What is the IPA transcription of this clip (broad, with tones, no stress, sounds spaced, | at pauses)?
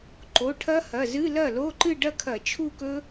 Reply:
ǃ o˩˧˩ ʈʰ ɐ˦˥ h ɐ˩˧˩ z ɨ˧˥˧ l ɐ˥˩ l o˧˥˧ ǃ ɨ˥˧ ɖ ɐ˥˧ kʰ ɐ˧˩˧ t͡ʃʰ u˥˧ k ɵ˦˥